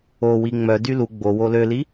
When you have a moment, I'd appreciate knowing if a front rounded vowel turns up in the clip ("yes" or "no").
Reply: yes